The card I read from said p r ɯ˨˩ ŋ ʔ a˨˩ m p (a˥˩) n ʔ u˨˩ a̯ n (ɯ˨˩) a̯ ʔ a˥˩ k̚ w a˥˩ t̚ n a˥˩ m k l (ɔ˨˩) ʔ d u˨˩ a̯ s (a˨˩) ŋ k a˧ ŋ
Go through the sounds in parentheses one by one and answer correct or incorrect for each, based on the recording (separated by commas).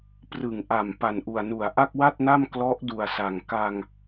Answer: incorrect, incorrect, incorrect, correct